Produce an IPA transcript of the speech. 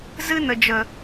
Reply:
z ɨ˧ n ə˨ d͡ʒ ə˨

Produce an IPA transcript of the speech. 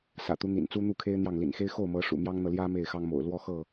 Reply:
s ä̰˨˩ t̪ u˦ n̪ ḭ˨˩ n t͡s u˦ n̪ u˥˨ kʰ e˦ ɪ̯ n̪ j ɑ˥˨ ŋ l ḭ˨˩ n x e˦ ɪ̯ x o˥˨ ʊ̯ m ɤ˨˦ ʂ ṵ˨˩ m j ɑ˦ ŋ n̪ ɤ˨ l j ä˦ m e˥˨ ɪ̯ x ɑ˦ ŋ m o̰˨˩ ʊ̯ l w ɔ˦ x ɤ˥˨

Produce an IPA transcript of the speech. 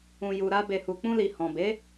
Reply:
ũ˨ j u˨ ɾ a˧ b e˨ h u˨ k͡p ũ˧ l i˨ h ɔ̃˨ b e˨˦

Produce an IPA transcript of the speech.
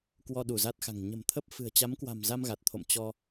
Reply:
k w ɔ˧ ɗ u˧˩ z a˦˥ t̚ x a̤˨˩ ŋ ɲ ə̤˨˩ m t̪ʰ ə˦˥ p̚ f ɨ̤˨˩ ə̯ t͡ɕ a˨˦ m k w a̤˨˩ m z a˧ m ɣ a˨˩ t̚ t̪ʰ o̰˧˨ m t͡ɕ ɔ˧

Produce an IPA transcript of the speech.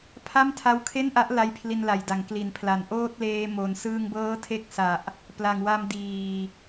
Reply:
pʰ a˥˩ m tʰ a˦˥ w kʰ e˥˩ n ʔ a˦˥ ʔ l a˦˥ j pʰ l i˧ n l a˨˩ j d a˩˦ ŋ k l i˩˦ n pʰ l a˨˩ n ʔ oː˥˩ t̚ l eː˧ m o˨˩ n s ɯː˧ ŋ b ɤː˦˥ tʰ e˦˥ k̚ s a˨˩ ʔ | p l a˨˩ ŋ w a˧ m d iː˨˩

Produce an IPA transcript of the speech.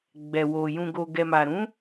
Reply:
ɡ͡b ɛ˨ w o˨ j ũ˨ ɡ o˨ ɡ ɛ˨ m a˨ ɾ ũ˨˦

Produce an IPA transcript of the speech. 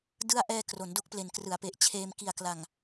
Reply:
d ɯ˥˩ a̯ ʔ ɛː˧ k r o˩˦ n d o˦˥ k̚ p l e˨˩ n k r ɯ˩˦ a̯ p e˨˩ ʔ t͡ɕʰ eː˧ m k i˨˩ a̯ k l a˨˩ ŋ

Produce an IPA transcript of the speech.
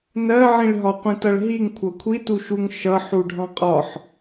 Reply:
n ɜ ʕ ĩ ɭ ɦ ɒ qʷ ĩ t ʌ ɭ ɦ i ŋ kʷʰ ʌ kʷʰ i t u ʃ u ŋ ʃ ʌ ħ u ɖʱ ɑ̃ qʼ ɒ ħ

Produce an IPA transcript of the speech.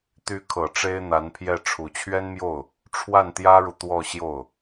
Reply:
t̪ y˧˥ kʰ ɤ˨˩ ʈ͡ʂ e˥ ɪ̯ n̪ a˧˥ n pʰ j ɛ˥˩ ʈ͡ʂʰ u˨˩ t͡ɕʰ ɥ ɛ˥ n m j o˥˩ ʊ̯ | ʈ͡ʂʰ w a˥˩ n t̪ j ä˥ ɻ u˨ t̪ w ɔ˥˧ ɕ j o˥˩ ʊ̯

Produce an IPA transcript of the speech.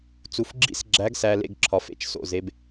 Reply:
t͡s u˨ f ɡ͡ǁ ḭ˦ s ɡ͡ǁ æ˨˦ ɡ s æ˨ l ḛ˨ ɡ ǁʰ ɒ˨ f ḛ˦ t͡ʃ s o̰˨ z e˨˦ b

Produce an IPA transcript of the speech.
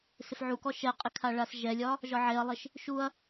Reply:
s ɪ f ʕ u k ɔ ʃ ɛ qʼ ɪ kʰ a ɭ a s ʒ ɛ lʲ ɒ | ʒ ɒ ʕ e ɐ̯ lˠ ɪ ʃ | ʃ u ɐ̯

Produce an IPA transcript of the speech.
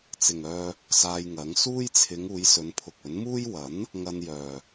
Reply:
t͡s ɪ˨ ŋ œː˧ | s aː˧ j ŋ ɐ˨˥ ŋ s uː˥ j t͡sʰ ɪ˨˧ ŋ uː˨˧ j s ɵ˨˧ n pʰ ʊ˨ k̚ ɵ˨˥ n m uː˥ j w ɐ˨˥ n | ŋ ɐ˧ n j œː˨

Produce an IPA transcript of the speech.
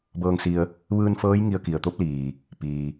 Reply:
b ɤː˧ ŋ s i˧ ə̯ | ʋ ɯː˧ n f ɤː˧˥ j ŋ i˧ ə̯ k i˩ ə̯ t̪ o˧˥ p̚ l iː˩ | p iː˩

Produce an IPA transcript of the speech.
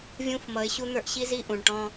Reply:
vʲ ũ˦ f m ʌ˨˦ ɪ̯ ɕ u˦ n̪ ə˞˦ ʔ ɕ i˦ z i˦ ʔ ũ˨ ɳ ʈ ɔ̃˦

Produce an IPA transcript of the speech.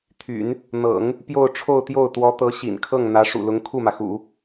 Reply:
t̪ʰ y̰˨˩˦ n | n̪ ɤ̰˨˩˦ ŋ | p j o˥˧ ʊ̯ ʈ͡ʂʰ o˥˧ ʊ̯ t̪ j o˥˩ ʊ̯ t̪ w ɔ˧˥ t̪ ɤ˧˥ ɕ ḭ˨˩ n kʰ ɤ˥˩ ŋ n̪ ä˧˥ ʂ ṵ˨˩ l ʊ˧˥ ŋ kʰ u˥˩ m ä˩ x ṵ˨˩˦

